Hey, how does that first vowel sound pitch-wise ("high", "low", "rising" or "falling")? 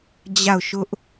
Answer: falling